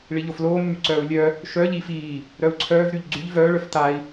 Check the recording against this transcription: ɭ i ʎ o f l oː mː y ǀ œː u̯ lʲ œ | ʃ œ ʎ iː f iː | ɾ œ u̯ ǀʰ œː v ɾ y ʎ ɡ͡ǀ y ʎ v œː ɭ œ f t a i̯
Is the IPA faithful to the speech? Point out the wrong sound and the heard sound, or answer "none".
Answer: none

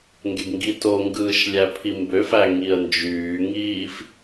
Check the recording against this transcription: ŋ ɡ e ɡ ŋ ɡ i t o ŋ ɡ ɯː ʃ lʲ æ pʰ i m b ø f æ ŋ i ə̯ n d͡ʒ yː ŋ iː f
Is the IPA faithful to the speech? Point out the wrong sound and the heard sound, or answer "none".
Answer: none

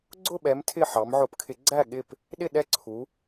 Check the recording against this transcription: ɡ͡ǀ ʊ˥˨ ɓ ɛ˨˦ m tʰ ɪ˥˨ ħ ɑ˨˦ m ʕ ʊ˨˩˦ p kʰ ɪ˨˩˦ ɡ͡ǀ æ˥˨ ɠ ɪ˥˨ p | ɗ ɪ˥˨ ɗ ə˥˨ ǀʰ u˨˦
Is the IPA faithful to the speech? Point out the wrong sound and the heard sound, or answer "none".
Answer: ə˥˨ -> ɛ˥˨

